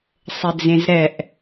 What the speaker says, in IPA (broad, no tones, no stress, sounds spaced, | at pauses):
sˤ ɘ d͡z ẽ z ɾ ɛ ʔ